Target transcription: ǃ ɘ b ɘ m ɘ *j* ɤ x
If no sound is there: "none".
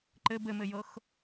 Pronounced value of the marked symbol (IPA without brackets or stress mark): j